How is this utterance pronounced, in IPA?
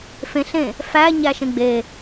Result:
fẽɬẽ | fæɲæʃẽ ɡ͡be

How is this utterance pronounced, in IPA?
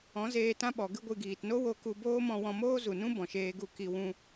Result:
ɔ̃˨˦zeː˧tã˦ɓɔ˨ ɡɨ˧ɡʷɨ˨ ɡiː˨tno˦wo˧ ku˧boː˦mɔ̃˧wɔ̃˧ moː˦zu˨nũ˦ bɔ̃˨ʃeː˧ɡu˦˨ ki˧wũ˧

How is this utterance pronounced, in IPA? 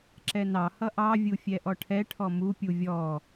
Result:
ǁɛnɑhʌ ʔɑvʲufʲɛ ʔɔʈʰɛ ʈʰɔmu pʲuvʲɔ

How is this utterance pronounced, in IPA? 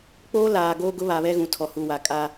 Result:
k͡poː˦laː˨ɡoː˦ ɡʊ˦βa˨βɛ˦ɣũ˨ tʰɔ˨hu˨wa˨kʼa˦

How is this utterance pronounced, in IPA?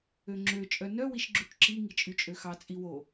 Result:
øŋ͡ǁø t͡ʃʼœnœ wiʃɡ͡ǁʉʈǁi ŋit͡ʃʼyt͡ʃʼøxɑ t͡sʼiwo

